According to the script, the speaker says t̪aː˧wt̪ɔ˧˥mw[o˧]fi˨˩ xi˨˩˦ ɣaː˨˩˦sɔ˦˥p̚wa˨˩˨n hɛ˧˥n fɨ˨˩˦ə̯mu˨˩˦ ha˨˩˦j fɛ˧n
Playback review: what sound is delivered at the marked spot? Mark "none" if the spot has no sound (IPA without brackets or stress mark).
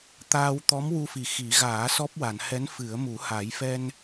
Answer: u˧